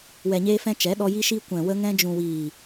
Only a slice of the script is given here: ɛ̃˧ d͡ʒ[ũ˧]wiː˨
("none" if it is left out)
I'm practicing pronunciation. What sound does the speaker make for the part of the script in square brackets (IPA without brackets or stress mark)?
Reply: ũ˨